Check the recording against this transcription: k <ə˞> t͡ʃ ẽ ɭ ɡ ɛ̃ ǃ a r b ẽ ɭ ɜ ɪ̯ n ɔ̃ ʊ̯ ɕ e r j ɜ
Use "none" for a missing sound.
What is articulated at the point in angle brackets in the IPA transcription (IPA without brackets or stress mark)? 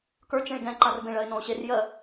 ə˞